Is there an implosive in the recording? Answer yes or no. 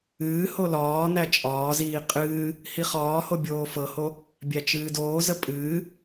no